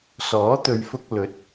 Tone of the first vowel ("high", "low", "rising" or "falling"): rising